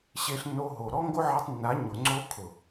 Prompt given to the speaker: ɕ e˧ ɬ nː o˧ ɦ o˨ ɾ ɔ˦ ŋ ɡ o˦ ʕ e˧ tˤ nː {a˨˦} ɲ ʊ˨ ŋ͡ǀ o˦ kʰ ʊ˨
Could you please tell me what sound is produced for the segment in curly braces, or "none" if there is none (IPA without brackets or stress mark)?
a˨˦